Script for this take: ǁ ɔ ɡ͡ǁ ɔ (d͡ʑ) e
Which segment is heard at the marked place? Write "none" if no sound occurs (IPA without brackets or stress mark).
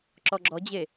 d͡ʑ